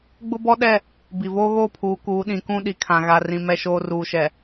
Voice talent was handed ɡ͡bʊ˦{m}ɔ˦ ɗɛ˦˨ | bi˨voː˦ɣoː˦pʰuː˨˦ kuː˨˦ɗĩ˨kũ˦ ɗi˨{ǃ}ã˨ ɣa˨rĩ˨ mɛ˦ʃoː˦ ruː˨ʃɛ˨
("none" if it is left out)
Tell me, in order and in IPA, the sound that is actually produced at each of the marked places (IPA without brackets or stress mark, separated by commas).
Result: b, kʰ